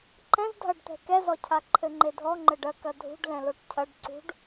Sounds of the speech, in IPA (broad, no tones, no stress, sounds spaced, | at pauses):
ǃ ɛ̃ z dʱ ɐ ɖ t̪ ɛ̤ k ɛ z ɔ cʰ a ǃʰ ɘ ŋ͡ǃ e dʱ ɔ ŋ͡ǃ ɘ ɖ ɐ k ɐ dʱ ṳ ɖ l ɛ̃ l o ʈ cʰ ɐ ɖ ǀ ṳ ɖ